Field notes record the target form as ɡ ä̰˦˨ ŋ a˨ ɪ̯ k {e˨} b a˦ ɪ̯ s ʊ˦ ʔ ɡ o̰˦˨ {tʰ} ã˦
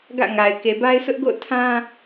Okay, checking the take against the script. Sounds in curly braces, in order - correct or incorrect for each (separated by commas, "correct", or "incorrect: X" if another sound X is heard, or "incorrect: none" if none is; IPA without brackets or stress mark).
correct, correct